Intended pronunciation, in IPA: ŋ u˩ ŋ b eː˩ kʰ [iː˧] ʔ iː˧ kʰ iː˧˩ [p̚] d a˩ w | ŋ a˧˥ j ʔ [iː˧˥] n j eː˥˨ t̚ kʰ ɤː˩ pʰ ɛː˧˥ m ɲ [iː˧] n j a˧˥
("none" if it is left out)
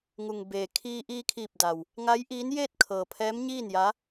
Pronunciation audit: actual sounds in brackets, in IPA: iː˧, p̚, iː˧˥, iː˥˨

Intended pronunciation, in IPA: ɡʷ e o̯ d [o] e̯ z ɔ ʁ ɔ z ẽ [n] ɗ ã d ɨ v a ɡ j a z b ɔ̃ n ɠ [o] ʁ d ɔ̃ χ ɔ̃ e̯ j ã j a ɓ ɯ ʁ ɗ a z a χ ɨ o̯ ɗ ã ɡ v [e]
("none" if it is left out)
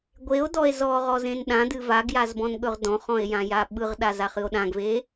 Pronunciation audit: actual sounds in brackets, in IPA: ɔ, n, ɵ, e

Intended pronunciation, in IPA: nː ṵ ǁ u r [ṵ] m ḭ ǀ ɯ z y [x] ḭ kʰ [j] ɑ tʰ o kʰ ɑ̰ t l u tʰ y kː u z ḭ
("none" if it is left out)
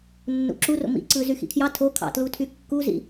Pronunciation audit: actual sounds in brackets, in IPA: o̰, x, j

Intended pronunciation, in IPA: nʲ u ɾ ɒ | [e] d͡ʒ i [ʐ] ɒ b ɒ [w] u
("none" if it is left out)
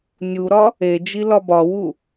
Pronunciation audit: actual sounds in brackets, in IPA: e, l, w

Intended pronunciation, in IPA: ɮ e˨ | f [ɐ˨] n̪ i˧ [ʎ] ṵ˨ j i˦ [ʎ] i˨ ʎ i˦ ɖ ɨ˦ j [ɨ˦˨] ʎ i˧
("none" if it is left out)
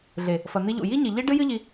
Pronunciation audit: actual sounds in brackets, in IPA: ɐ˨, ʎ, ɲ, ɨ˦

